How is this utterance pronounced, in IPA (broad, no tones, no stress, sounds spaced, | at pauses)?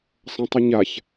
sˤ ɐ̃ tˤ ɨ ɲ a ç